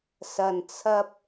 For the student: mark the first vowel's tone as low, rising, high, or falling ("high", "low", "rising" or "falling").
low